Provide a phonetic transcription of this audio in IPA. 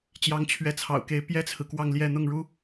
t͡ɕ j ɑ˧˥ ŋ t͡ɕʰ ɥ ɛ˧˥ t͡sʰ ɑ̰˨˩ ʊ̯ k e˧˥ ɪ̯ p j ɛ˥ t͡sʰ ɹ̩˨ k w ɑ˥˧ ŋ l j ɛ˥˧ n̪ ʊ˥˩ ŋ ɻ u˥

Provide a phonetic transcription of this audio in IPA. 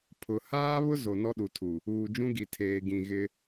pʰ ʊ˨ h aː˦ β ʊ˦ z o˨ n ɔ˦ ɗ u˨ tʰ u˨ | uː˨ d͡ʒ ũ˦ ɡ i˨ tʰ eː˨ ɡ ĩ˨ ɣ ɪ˦

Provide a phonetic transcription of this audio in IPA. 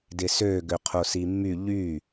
d ɪ s ø ɡ ø qʰ o s i mː y ʎ y

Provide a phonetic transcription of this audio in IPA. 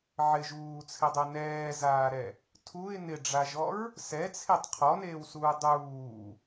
ʕ ɪ ʒ uː t͡sʰ ɪ dˤ ɛ n ɛː z aː ɾ ɛ | tʰ u ɪ̯ n ɪ ɖ͡ʐ a ʒ ɔ ɹ | s ɛ t͡sʰ e tˤ qʰ ɔ n eː w s uː dˤ uː

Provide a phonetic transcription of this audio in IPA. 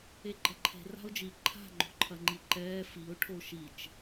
e ɡ͡ǃ ɐ ǃʰ e̤ r a̤ ʊ̯ d͡ʒ i ǃʰ a̤ ŋ͡ǃ o̤ ǃʰ ɐ ŋ͡ǃ i ǃ ɛː f i ʊ̯ ʈʰ o ʃ i t͡ʃ

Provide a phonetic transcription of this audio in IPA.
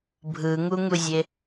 bʱ ɯ ŋ u ŋ u zʲ e

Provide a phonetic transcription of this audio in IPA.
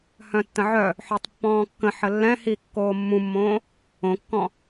h œ̃ tː ə̃ ʕ œ | ħ œ tˤ pː ɔ̃ː kː ə̃ ħ ə lː ɛ̃ h i kː oː mː ũ mː õː | õ kː ɔ̃

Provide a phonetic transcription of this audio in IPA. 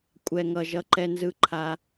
kʷʼ ɛ˨ ŋ ʌ˨ ʒ ʌ˨ ǃ ɛ˦ n z ɯ˦ ǃʰ a˦

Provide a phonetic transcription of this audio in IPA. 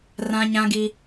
r ã˦ ɲ ã˦ ɡ i˦

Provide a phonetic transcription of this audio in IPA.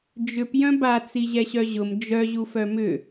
d͡ʒ ʏ p j œ̃ b a t͡s i ʑ ɛ ɕ œ ʑ ʊ m d͡ʒ œ ʑ u f œ m ʏ

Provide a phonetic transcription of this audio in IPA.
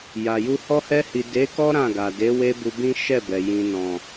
j a˨ j u˧ h ɔ˧ h ɛ˧ h i˨ d e˨˦ k ɔ˦ ɾ ã˦˨ ɡ a˨ d e˨˦ w e˦ b u˧ b ĩ˦ ʃ ɛ˦˨ b ɛ˨ j ĩ˨ n ɔ̃˨

